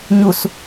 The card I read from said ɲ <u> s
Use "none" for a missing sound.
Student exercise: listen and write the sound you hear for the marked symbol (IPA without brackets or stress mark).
u